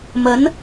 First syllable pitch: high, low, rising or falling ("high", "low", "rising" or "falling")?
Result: rising